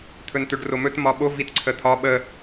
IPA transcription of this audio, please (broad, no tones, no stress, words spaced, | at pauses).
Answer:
t̪ʰɵnt̪ɵɖromɵt mɒɓo vitǀʰət̪ʰɒ ɓə